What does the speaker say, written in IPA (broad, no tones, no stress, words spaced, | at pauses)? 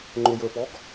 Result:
ŋ͡ǃʊjə˞pɔɡ